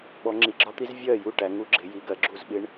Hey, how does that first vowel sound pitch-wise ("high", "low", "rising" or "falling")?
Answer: rising